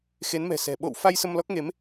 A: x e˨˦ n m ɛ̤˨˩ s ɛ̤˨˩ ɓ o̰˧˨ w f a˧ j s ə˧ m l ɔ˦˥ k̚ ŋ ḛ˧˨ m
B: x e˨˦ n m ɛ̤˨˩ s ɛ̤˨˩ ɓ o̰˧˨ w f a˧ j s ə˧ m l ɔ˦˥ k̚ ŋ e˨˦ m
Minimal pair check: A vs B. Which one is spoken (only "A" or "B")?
B